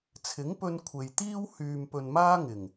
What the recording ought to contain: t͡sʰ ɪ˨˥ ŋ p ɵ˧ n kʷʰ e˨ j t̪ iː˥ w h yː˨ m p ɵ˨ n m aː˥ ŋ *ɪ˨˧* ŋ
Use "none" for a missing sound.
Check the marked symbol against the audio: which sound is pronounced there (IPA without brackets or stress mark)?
ɪ˨˩